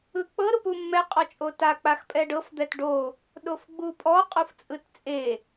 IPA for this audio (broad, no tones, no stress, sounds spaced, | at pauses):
ɯ k͡p ɤ ɾ u p u mː ɛ qʼ ɔ t͡ʃʼ o t a k͡p a x pʼ ɛ ɖ ɤ f d̪ ɛ t ɖ o | ɗ o f ɡ͡b u pʼ ɔ qʼ u f t͡sʼ ɯ t t͡sʼ e